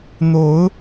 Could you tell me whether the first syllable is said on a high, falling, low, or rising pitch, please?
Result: rising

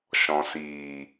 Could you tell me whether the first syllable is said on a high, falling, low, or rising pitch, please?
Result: low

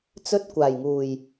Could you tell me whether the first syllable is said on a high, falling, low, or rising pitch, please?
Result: high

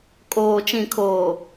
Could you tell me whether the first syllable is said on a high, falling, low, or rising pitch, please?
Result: low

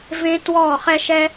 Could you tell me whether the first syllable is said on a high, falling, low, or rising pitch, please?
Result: high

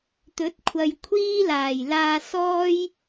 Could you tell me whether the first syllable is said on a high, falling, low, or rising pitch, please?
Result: rising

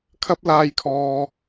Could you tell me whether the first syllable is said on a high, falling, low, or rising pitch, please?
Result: high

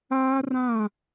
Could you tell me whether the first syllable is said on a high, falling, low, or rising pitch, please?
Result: high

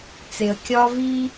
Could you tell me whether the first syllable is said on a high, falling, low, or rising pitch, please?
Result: low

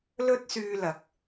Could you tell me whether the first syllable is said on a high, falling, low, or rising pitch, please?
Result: high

